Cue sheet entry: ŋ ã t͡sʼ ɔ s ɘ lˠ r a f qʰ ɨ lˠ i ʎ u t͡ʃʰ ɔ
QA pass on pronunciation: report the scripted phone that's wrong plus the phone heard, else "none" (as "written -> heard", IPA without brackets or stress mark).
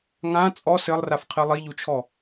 none